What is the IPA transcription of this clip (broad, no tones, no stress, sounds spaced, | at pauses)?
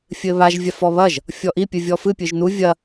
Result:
fʲ ɘ β a ʒ vʲ a f ɔ β ɐ ʒ | fʲ ɔ ʔ i pʲ ɨ vʲ ɔ f ɨ pʲ ɨ ʒ n u vʲ ɐ